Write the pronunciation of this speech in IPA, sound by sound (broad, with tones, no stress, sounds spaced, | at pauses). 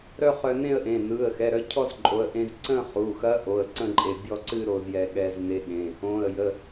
ɾ œ˥˧ χ œ˧ n ẽ˥˧ ə̯ ʔ ẽ˩˧˩ n ɯ˩˧˩ ə̯ x ɛ˩˧˩ ɾ œ˧ cʰ ɔ˥˧ z ǃʼ o˩˧˩ ə̯ ʔ ẽ˧ z ǀ ə̃˥˧ χ u˩˧˩ x ɐ˧˥ ʔ o˩˧˩ ə̯ ǀ ə̃˥˧ ǃʼ e˩˧˩ bʲ ɔ˥˧ ǀ ɨ˥˧ ɾ o˥˧ z j ɛ˧ ɠ ɛ˧ z n e˧˥ ɠ ẽ˩˧˩ | õ˩˧˩ ə̯ j ə˩˧˩